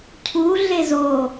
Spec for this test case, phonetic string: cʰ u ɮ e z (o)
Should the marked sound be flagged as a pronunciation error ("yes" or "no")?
no